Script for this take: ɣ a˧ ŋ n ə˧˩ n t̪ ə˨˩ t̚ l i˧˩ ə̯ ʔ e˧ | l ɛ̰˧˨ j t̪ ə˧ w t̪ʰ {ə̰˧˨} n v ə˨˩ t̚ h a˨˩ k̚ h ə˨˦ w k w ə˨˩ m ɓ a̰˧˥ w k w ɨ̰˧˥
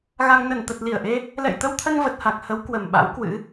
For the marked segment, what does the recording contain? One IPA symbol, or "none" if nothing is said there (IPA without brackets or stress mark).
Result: ə˧